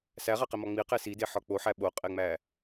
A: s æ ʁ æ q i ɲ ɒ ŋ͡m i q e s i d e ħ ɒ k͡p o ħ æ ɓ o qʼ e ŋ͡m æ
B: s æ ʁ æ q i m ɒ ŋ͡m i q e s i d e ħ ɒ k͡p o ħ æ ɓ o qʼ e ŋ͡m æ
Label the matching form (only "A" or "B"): B